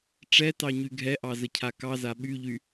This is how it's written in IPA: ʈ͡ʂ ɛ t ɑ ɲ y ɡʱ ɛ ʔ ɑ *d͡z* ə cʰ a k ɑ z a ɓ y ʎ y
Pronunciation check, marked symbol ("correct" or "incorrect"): incorrect